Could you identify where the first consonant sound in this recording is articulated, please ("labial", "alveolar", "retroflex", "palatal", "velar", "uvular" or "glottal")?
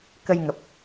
velar